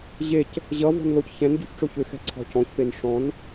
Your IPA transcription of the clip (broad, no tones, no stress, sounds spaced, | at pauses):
ʑ e c | ʑ ʌ v ɔ̤ n l o c ç ɛ̃ n ɟ u ç ʈ͡ʂ o ç ʏ x ɛ̤ ǀʰ ɔ̤ c ɔ̃ ç p e n ʂ ɔ̃ n